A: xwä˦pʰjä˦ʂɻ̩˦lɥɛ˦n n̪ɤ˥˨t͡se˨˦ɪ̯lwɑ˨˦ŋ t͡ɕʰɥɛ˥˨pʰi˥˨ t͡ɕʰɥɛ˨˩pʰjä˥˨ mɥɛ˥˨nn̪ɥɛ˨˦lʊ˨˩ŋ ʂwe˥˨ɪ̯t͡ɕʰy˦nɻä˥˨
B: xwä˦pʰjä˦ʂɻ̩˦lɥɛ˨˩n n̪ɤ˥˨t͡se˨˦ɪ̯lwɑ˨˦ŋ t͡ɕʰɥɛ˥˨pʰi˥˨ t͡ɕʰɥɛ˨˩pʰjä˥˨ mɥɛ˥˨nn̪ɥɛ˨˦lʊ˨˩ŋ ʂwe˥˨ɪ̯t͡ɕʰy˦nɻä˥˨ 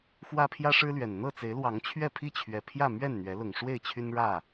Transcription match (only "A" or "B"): B